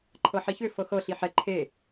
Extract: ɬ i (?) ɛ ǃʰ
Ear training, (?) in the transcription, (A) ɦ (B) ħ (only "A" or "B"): B